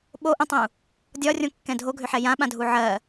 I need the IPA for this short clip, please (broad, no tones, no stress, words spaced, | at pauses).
ɓoʔũtˤũ | dʲɒrʲõkːɛ̃ dʱoɡʱʏħɛ jãɓãdʱu ʕɜ